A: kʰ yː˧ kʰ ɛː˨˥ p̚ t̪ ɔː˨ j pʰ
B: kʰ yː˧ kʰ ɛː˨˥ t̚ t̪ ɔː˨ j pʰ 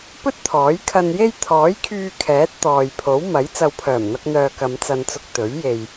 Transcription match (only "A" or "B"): B